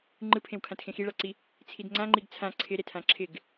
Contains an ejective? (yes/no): no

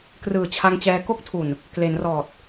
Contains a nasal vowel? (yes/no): no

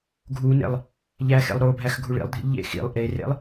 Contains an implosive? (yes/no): no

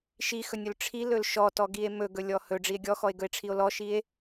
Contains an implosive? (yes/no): no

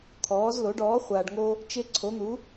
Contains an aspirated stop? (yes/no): yes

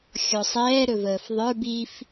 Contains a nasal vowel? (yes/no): no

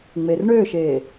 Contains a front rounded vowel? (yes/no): yes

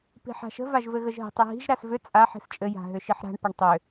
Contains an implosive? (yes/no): no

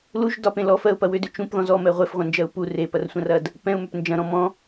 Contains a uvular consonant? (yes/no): yes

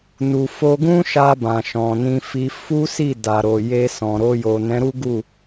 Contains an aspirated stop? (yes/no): no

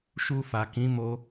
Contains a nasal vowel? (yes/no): yes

